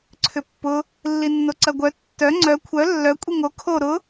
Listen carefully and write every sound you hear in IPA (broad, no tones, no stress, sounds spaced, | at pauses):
ǀʰ ʏ pː ʊ | lː i nː o ǀ ɐ ɡʷ œ tː œ ŋ͡ǀ œ kʷʰ œ lː œ kʷʼ i ŋ o kʰ o ɾ ʊ